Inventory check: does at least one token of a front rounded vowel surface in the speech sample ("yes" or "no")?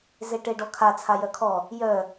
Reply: yes